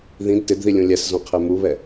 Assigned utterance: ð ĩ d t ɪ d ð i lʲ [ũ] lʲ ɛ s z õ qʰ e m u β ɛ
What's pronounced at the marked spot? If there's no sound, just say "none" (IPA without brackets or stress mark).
ũ